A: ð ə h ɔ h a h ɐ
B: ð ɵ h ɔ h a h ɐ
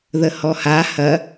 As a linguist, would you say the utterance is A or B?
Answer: A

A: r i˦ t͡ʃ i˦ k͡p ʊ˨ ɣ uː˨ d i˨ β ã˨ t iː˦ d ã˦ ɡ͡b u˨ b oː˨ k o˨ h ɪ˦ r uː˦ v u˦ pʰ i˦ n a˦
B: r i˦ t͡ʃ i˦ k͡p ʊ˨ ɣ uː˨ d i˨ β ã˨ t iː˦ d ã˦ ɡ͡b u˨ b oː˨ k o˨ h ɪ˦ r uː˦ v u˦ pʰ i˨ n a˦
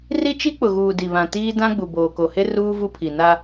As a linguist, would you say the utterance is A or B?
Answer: B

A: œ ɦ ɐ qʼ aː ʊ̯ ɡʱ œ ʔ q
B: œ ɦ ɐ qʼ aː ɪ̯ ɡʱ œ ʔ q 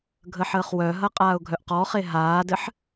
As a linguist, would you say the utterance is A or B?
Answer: A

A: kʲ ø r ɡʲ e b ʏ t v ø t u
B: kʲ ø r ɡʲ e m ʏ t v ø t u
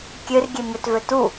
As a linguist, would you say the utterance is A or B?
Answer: B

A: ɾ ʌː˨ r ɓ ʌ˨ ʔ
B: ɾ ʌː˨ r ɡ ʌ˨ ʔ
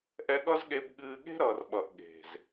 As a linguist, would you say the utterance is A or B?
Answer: A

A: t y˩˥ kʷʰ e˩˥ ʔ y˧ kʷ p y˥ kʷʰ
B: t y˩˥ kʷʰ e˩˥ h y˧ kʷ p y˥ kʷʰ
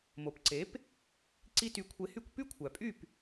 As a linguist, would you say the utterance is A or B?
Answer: B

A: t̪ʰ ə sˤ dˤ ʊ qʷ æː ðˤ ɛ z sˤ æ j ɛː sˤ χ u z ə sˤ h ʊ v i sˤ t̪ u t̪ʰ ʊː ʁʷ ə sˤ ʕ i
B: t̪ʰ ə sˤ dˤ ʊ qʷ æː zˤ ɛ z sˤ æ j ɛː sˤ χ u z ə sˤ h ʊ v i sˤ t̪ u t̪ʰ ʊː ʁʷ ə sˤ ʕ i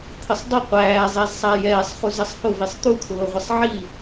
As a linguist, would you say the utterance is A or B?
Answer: B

